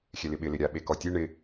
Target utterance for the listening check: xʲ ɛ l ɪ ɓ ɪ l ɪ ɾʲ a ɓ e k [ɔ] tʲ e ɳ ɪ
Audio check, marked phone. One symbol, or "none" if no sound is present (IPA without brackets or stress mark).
ɔ